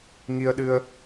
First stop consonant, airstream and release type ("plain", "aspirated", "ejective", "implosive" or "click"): implosive